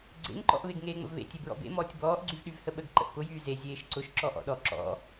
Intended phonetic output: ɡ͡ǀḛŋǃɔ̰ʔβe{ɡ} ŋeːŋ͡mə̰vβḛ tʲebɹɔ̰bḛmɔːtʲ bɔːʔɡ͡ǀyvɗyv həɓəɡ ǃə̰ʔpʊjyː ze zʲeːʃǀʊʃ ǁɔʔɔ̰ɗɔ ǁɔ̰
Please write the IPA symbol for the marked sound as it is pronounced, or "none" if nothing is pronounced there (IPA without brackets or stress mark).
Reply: ɡ